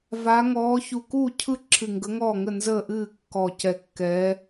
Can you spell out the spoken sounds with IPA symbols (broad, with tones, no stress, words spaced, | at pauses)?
va˧˥ ŋɔː˧˥ çu˧˩kuː˥˨cʰɯ˥˨ ǁʰɨ˧˩ŋɡə˧˥ŋɔː˥˨ŋə˥˨ nzəː˥˨ʔɨː˥˨kːɔ˧˩ cɛ˧˩kːɛː˧˥